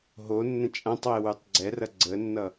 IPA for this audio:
ɦ o nː ə̃ t͡ʃʼ ã tˤ w e w ʉ tˤ ɡ͡ǀ ɛ r ɐ ɡ͡ǀ ə nː ʌ

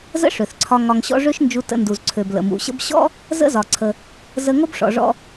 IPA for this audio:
z ə̰˥ ʂ ø˩ θ ǀʰ ɒ˧ ŋ ɒ˧ ŋ ɕ ɔ̰˥ ʐ ø˥ ʃ n d͡ʒ u˧ t ə̰˧ n d u˩ z ǀʰ ø˩ b l ə̰˩ m ṵ˩ ɕ ə̰˥ b ɕ ɔ̰˥ | z ə̰˥ z ɒ˩ ǀʰ ə˩ | z ə˧ ŋ o˥ b ʂ ɔ̰˩ ʐ ɔ̰˧

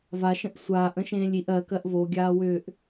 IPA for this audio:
v a ʃ ə̃ ʔ sʷ aː ʔ ə̃ ʃ ẽː lʲ i ʔ ɜ k ɜ ʔ v o ɡʲ aː w ʏː ʔ

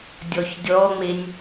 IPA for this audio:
dʲ ɔ ç dʲ ɔ ŋ͡m e nʲ

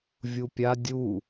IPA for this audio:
vʲ u pʲ a dʲ u

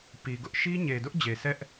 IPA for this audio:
p i˨ ɡ ʊ˦ ʔ ʃ i˦ ɲ e˨ d ʊ˦ ʔ d͡ʑ e˨ s ɛ˦ ʔ

